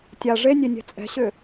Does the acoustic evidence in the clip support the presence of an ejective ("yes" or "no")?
yes